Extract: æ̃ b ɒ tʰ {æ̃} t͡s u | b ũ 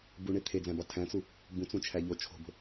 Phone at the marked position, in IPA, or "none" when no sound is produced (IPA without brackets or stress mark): æ̃